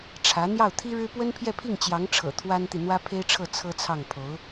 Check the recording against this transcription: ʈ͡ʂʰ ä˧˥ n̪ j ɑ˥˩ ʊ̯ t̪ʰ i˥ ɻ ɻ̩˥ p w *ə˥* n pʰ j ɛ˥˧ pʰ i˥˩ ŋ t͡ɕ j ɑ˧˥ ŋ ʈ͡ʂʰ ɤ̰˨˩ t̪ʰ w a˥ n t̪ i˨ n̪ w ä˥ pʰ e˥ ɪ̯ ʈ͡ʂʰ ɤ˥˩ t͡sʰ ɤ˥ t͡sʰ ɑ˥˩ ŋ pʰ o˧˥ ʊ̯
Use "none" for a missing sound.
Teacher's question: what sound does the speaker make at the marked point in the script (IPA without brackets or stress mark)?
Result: ə˥